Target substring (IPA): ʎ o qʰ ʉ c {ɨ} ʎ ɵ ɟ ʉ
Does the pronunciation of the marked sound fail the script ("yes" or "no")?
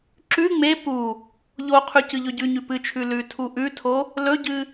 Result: no